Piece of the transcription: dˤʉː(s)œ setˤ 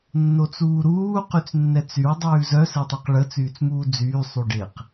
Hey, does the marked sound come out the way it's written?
no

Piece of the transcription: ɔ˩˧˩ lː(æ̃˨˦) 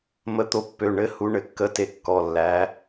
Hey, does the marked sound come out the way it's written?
no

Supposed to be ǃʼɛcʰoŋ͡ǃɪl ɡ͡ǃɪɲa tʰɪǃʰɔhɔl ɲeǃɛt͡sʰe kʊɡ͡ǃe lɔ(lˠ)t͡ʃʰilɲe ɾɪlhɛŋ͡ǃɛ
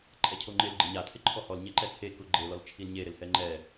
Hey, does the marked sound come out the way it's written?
no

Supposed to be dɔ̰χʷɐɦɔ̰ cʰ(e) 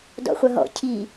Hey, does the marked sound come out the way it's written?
no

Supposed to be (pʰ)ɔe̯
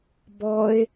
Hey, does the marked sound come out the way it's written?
no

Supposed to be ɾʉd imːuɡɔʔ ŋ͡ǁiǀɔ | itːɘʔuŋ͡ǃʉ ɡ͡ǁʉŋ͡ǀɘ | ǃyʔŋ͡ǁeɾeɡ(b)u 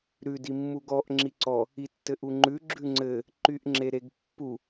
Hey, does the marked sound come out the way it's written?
no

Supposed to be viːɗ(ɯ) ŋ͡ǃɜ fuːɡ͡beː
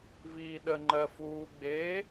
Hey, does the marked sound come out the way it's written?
no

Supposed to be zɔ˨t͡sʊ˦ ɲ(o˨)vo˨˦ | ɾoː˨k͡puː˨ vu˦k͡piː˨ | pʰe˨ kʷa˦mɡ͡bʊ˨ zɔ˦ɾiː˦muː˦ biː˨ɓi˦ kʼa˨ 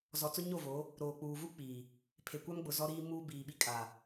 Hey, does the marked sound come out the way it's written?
no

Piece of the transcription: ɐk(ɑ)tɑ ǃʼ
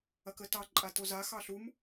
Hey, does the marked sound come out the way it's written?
no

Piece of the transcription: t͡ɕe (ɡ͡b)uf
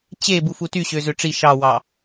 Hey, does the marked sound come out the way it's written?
no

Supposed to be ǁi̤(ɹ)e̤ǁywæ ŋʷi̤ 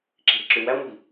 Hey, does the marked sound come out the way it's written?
no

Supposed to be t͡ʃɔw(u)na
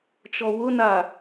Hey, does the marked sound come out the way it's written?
no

